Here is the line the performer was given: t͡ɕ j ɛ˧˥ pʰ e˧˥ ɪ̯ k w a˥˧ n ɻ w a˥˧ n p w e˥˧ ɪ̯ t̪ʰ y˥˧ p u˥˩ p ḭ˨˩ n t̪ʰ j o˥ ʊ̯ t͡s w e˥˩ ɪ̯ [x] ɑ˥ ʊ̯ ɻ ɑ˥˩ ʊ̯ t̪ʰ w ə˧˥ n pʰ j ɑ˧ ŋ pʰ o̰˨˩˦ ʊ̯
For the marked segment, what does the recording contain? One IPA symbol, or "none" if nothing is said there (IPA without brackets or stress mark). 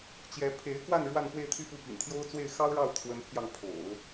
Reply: x